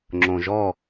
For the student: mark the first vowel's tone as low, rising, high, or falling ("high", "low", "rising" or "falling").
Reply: low